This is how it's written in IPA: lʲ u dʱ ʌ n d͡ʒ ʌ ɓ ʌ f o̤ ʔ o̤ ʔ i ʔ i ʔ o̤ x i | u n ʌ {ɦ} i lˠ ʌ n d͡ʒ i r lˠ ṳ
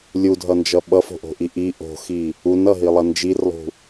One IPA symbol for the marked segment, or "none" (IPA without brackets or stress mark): ɦ